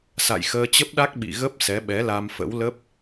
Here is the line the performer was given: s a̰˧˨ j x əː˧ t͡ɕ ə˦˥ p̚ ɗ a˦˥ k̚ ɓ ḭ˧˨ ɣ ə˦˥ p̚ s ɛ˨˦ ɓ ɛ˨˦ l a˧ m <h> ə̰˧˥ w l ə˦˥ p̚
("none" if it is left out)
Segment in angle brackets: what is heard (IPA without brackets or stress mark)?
f